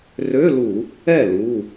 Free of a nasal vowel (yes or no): yes